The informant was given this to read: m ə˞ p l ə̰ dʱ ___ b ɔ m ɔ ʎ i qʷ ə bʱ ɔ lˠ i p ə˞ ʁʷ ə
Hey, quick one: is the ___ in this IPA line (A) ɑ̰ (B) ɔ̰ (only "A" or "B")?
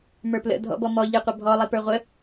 B